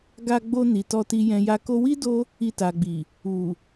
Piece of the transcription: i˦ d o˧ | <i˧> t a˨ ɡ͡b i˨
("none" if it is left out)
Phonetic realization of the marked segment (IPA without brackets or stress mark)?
i˧